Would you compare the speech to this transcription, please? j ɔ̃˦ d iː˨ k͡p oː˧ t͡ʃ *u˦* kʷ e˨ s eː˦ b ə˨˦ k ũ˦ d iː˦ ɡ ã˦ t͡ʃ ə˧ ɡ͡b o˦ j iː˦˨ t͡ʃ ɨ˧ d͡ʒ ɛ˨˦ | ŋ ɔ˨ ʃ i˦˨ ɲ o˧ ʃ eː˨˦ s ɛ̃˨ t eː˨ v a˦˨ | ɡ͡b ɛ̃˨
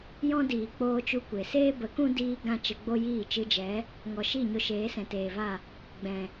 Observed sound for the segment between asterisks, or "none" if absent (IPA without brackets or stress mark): u˦